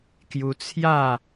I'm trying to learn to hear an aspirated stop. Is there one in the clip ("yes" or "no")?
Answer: yes